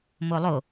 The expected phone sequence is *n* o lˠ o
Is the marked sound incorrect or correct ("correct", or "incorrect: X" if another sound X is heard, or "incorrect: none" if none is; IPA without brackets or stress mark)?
incorrect: m